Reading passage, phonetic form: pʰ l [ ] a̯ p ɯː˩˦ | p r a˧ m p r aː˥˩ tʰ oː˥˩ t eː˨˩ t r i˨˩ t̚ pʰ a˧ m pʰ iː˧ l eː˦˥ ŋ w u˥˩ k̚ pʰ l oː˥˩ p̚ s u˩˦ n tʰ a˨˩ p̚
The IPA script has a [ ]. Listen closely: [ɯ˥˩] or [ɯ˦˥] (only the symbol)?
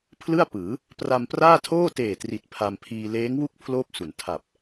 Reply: ɯ˥˩